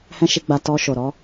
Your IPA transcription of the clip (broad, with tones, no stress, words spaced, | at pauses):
hɛ̃˦ʃi˧ɡ͡ba˧ tɔ˧ ʃo˨ɾɔ˧